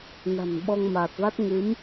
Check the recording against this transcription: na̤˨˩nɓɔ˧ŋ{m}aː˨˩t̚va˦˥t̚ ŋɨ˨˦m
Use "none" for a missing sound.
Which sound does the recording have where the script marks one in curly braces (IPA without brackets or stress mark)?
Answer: m